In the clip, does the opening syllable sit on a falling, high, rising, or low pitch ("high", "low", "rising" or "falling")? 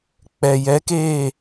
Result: low